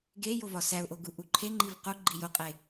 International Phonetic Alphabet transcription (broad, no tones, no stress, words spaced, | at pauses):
ɡe jovɒsæʊ̯ʔo ɡuʔuǃʰeŋ͡ǃiv qu ɡ͡ǃijoqʼe